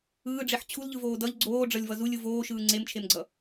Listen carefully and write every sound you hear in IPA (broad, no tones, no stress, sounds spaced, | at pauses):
ɯː ɖ͡ʐ e ħ t͡ɕʰ u l ʎ ɯ v oː d ʌ ʎ ɡ͡ǀ oː ɖ͡ʐ ʌ lʲ v ʌ z u lʲ ɯ v oː ʃ ɯː ŋ͡ǀ e m t͡ʃʰ e m ɡ͡ǀ ʌ